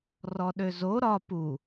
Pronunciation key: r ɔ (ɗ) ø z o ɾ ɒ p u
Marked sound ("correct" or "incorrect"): correct